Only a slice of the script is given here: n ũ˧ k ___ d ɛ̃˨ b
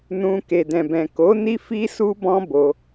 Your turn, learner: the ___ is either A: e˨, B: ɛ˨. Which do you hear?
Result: A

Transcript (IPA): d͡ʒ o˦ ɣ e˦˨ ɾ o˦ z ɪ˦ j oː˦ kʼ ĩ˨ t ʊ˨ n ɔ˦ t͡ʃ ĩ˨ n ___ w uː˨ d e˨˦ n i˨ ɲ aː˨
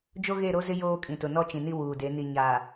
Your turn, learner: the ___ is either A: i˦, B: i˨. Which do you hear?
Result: A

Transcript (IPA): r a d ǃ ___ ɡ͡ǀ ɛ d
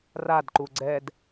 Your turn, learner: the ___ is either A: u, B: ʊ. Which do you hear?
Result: A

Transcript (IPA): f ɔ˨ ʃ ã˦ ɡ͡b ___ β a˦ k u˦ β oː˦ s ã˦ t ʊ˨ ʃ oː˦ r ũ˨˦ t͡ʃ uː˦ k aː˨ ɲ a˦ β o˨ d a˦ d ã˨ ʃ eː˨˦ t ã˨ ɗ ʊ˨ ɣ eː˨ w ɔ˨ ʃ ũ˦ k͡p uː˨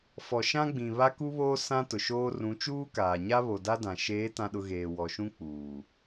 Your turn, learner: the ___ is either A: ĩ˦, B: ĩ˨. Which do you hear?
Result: B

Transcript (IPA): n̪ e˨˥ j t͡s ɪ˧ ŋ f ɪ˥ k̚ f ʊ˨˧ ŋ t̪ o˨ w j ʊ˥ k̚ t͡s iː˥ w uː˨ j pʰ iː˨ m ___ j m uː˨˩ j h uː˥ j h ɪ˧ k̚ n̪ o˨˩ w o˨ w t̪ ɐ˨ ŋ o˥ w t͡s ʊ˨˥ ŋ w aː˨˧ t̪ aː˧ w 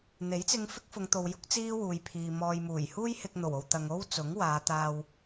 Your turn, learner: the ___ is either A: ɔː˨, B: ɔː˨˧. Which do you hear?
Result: A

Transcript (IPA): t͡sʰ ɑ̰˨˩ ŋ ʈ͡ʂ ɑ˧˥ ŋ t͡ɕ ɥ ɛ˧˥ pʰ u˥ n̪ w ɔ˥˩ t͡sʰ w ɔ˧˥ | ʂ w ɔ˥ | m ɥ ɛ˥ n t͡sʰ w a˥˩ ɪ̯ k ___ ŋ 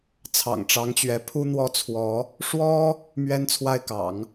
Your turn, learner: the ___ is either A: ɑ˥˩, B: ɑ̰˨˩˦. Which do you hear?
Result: B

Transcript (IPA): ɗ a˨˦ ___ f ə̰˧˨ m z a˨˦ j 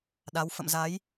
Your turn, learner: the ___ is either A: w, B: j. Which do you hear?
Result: A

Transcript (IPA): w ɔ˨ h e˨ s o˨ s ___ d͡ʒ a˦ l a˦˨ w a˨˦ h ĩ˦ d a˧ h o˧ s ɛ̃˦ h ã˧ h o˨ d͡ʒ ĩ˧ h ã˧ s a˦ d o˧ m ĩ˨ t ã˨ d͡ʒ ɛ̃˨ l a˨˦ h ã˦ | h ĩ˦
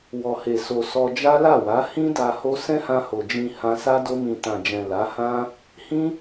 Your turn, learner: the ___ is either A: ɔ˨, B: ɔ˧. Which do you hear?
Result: B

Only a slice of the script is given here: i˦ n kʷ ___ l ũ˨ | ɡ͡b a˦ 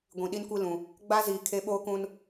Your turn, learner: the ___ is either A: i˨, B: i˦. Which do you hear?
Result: B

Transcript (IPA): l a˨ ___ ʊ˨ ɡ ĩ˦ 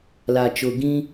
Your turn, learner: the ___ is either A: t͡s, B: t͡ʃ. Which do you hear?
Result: B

